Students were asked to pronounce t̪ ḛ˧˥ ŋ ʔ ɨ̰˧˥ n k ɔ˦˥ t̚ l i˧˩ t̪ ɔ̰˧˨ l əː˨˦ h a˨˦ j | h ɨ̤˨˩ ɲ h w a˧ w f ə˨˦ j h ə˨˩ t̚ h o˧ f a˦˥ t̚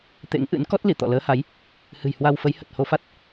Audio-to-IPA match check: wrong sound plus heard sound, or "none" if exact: ɲ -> j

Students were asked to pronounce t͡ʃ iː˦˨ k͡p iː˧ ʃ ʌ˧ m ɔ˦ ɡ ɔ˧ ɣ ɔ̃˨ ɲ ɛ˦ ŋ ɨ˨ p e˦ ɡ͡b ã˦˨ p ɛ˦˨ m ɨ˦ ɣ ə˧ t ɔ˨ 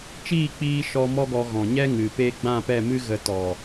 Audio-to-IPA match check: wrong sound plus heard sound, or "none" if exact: ʌ˧ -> ɔ˧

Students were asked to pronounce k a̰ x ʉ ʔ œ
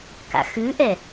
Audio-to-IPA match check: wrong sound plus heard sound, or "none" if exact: œ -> ɛ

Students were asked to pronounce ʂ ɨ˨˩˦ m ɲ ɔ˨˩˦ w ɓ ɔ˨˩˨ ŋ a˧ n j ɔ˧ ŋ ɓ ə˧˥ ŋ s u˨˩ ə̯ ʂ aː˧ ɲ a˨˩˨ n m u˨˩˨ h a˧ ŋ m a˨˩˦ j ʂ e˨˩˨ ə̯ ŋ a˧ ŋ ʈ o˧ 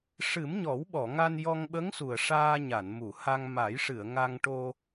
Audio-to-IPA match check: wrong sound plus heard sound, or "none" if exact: e˨˩˨ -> ɨ˨˩˨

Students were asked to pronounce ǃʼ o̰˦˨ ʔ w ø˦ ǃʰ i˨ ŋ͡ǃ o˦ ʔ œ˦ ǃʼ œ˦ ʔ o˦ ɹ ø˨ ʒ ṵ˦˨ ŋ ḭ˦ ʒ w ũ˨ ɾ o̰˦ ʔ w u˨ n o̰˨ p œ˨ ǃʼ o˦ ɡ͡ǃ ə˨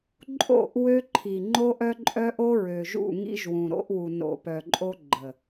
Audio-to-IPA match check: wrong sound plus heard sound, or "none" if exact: none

